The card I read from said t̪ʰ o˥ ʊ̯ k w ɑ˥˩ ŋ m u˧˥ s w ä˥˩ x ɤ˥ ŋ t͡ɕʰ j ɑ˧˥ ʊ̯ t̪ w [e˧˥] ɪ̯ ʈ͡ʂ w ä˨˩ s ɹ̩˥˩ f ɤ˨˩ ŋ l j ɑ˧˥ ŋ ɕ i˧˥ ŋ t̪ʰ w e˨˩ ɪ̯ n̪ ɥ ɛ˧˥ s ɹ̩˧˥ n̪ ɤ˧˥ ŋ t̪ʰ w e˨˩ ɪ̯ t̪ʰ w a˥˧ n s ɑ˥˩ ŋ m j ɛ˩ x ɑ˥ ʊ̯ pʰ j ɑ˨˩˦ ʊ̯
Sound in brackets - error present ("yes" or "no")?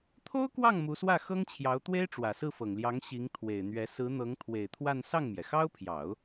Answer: yes